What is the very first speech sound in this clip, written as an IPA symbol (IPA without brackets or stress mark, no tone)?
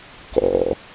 k